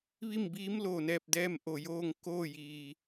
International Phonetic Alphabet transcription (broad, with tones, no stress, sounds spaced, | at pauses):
ʋ i˥˨ m b iː˧˥ m l oː˩ n ɛː˧˩ p̚ d ɛː˥˨ m ʔ o˧˩ j oː˥˨ ŋ k oː˥˨ j iː˩